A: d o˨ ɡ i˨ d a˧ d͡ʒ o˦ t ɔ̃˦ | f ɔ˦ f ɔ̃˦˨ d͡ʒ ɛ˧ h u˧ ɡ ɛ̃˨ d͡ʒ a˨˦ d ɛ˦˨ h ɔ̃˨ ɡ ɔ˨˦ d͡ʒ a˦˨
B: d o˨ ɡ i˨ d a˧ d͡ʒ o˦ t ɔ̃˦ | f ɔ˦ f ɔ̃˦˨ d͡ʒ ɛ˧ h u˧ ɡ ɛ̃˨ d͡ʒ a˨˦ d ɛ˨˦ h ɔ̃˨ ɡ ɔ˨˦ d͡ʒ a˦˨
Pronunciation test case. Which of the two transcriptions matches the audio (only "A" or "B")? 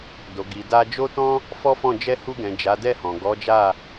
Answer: A